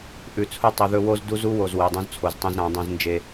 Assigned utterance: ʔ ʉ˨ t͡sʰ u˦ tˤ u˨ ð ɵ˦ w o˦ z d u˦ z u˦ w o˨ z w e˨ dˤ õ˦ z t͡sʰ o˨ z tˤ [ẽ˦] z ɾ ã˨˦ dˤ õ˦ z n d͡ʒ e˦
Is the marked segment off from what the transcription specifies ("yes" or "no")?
no